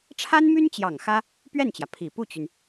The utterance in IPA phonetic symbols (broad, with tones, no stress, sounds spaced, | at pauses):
ʈ͡ʂʰ a˥ n m y˥ n t͡ɕ j ɑ˨˩ ŋ x ä˥ | p ɥ ɛ˥˩ n t͡ɕ j ä˩ pʰ i˨˩ p u˥˩ t͡ɕ y˩ n